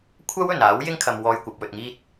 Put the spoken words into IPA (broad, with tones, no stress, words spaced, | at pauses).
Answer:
kʷʰɐ˥wɵ˨˩n aː˨˥wjɪ˥ŋkʰɐ˨m wɔː˧jkʷɐ˨p̚wɵ˨t̚ŋiː˥t̚